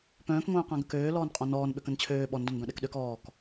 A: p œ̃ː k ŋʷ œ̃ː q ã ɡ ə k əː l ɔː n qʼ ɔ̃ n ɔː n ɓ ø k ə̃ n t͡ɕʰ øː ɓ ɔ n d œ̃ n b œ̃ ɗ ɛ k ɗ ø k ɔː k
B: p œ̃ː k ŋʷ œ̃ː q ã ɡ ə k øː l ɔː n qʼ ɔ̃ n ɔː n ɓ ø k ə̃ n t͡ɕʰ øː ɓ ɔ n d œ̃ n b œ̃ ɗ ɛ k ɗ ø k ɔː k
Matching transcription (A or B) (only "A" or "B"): B